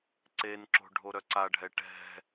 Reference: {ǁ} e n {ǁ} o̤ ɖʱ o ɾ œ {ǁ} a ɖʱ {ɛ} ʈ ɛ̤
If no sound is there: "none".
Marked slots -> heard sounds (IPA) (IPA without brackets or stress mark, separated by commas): ǀ, ǁ, ǀ, ɛ